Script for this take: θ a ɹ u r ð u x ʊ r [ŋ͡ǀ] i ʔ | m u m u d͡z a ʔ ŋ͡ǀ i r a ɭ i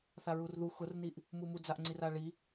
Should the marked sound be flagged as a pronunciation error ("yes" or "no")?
yes